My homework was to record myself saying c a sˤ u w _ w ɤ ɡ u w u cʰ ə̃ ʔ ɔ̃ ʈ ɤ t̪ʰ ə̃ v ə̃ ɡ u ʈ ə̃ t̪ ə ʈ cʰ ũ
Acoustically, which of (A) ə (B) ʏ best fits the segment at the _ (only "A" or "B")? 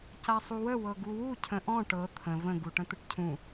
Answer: A